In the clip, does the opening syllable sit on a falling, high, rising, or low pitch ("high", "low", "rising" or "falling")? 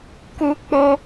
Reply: high